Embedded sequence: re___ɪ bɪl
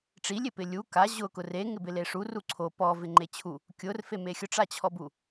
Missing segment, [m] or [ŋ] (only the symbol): ŋ